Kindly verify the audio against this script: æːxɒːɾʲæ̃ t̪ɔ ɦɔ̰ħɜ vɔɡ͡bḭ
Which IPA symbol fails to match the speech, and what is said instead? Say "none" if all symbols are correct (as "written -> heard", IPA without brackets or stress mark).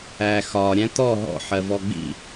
none